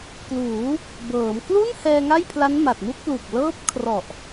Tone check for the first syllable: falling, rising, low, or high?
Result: rising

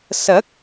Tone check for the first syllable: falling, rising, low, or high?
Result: rising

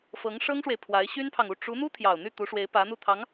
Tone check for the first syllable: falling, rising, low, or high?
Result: rising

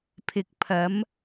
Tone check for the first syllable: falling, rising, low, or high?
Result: low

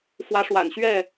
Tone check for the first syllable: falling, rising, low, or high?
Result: rising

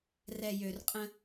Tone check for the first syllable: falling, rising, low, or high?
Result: low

